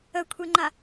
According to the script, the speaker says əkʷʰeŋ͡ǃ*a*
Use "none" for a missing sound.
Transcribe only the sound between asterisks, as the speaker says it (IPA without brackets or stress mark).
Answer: a